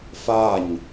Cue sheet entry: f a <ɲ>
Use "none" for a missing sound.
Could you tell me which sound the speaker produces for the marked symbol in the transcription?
ɲ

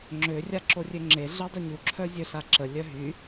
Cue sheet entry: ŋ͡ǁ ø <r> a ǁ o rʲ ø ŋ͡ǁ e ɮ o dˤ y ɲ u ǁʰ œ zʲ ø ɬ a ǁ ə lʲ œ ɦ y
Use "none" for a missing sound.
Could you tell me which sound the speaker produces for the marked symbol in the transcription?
rʲ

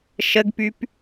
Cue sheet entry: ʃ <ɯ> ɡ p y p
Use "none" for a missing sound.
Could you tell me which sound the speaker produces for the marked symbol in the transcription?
ə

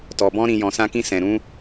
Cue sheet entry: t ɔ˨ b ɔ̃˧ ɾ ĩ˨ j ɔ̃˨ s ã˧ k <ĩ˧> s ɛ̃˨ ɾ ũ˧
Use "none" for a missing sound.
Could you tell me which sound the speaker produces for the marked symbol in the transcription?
ĩ˧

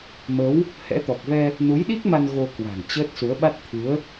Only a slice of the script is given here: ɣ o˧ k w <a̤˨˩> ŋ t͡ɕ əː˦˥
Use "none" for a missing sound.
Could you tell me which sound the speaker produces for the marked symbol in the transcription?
a̤˨˩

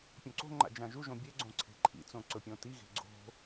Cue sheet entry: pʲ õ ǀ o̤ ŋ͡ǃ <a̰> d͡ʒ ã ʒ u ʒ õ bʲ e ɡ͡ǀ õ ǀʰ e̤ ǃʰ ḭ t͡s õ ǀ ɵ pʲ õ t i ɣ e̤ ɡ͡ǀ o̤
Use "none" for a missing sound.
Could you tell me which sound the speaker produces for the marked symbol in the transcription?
a̰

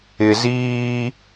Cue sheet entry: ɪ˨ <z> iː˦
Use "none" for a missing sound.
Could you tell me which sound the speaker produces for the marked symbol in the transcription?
z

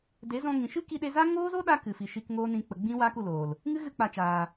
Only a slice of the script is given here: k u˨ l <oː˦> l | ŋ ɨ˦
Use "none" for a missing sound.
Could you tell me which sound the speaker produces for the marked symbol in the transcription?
oː˨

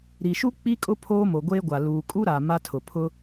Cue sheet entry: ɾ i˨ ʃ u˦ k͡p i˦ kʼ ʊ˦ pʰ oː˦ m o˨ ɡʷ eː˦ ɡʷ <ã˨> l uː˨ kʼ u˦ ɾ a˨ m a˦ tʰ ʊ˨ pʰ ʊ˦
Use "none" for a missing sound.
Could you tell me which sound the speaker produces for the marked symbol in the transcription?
a˨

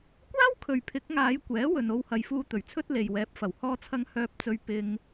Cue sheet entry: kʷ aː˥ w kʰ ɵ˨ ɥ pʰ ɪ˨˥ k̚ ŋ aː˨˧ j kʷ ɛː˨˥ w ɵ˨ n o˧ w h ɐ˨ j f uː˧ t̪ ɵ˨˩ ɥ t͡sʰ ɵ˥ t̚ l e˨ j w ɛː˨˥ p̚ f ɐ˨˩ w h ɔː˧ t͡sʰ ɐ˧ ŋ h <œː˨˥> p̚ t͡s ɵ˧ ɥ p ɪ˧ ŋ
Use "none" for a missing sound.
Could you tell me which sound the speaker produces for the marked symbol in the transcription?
œː˧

